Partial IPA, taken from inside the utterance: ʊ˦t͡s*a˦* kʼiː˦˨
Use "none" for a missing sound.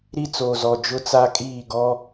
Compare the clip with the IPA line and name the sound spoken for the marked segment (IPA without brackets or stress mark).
a˦